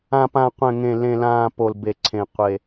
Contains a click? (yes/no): yes